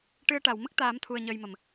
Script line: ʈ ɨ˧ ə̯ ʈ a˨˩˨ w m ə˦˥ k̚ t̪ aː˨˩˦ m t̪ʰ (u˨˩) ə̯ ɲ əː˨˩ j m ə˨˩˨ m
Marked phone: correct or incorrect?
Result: correct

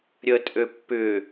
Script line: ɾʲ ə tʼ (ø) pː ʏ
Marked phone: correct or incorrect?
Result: correct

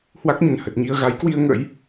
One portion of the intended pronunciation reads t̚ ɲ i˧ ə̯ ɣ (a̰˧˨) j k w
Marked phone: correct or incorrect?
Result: incorrect: a˨˦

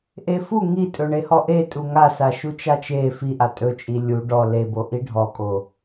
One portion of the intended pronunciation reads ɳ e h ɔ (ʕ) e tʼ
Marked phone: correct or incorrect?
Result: incorrect: ʔ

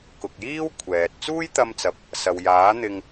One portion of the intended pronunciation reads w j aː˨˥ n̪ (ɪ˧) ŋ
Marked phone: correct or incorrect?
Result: correct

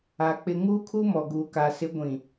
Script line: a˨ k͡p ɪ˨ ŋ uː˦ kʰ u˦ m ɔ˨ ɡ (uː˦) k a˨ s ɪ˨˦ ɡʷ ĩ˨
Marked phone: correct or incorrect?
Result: incorrect: uː˨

